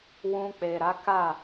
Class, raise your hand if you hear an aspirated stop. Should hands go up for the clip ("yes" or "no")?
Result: no